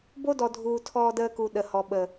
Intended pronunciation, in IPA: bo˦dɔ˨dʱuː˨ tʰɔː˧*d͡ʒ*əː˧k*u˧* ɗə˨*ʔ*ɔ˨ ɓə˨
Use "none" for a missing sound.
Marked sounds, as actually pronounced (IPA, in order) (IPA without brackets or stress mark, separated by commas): d, u˨, h